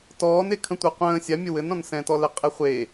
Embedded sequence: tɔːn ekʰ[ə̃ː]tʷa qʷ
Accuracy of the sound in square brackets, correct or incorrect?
incorrect